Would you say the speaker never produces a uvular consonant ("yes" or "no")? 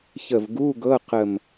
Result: no